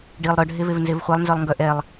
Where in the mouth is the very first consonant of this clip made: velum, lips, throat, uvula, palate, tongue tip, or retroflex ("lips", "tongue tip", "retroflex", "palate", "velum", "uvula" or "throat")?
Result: retroflex